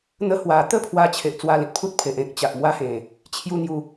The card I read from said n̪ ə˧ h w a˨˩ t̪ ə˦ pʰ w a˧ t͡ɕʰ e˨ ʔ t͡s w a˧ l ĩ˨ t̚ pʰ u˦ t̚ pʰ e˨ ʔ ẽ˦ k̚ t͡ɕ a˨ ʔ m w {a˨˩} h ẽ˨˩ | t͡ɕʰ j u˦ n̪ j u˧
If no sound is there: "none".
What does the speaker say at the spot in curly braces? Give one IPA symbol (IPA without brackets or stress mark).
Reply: a˦